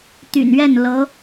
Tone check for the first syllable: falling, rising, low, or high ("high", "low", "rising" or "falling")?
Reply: low